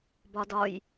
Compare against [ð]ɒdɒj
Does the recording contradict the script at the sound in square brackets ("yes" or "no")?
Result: yes